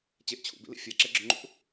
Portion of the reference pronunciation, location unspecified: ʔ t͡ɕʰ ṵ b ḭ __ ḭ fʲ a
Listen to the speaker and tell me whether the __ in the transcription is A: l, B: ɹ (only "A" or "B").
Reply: A